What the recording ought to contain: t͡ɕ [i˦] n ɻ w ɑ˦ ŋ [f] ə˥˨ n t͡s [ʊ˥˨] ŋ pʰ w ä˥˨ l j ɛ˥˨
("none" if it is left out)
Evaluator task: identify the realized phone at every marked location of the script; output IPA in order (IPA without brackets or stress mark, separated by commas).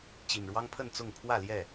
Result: i˨˩, pʰ, ʊ˥˨